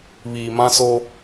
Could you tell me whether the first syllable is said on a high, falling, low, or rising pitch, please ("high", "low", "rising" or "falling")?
low